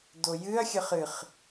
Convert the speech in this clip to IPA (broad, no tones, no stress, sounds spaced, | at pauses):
d o j ɨ ɐ̯ xʲ ə χ ɨ χ